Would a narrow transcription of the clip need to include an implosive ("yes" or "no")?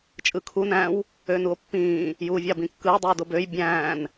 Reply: no